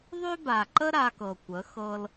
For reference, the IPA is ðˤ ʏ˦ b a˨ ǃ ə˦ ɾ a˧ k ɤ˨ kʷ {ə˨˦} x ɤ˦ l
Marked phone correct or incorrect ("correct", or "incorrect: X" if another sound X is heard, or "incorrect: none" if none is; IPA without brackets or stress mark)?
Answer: correct